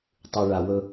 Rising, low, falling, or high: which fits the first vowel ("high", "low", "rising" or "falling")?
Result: low